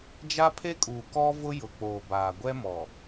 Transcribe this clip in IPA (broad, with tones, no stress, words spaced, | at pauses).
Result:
d͡ʒa˦pʰe˦ kʼuː˨kɔ˦vʊ˦ jʊ˨k͡poː˨ baː˨ɡʷɛ˦mɔ˨